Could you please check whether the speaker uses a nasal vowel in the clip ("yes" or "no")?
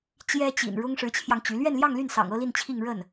no